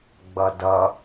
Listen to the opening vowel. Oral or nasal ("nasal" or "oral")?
oral